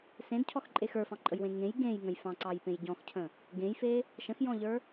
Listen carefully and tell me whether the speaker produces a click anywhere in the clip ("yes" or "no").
yes